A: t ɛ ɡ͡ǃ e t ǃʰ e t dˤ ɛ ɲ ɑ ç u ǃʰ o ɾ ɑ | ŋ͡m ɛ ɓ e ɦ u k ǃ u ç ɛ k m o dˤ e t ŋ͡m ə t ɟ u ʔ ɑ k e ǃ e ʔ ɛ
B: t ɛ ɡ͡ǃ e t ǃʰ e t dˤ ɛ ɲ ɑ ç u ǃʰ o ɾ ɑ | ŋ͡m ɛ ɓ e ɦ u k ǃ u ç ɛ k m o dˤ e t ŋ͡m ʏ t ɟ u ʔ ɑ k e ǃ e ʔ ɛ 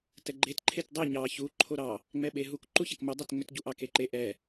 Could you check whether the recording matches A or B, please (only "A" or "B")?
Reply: B